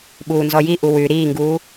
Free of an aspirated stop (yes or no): yes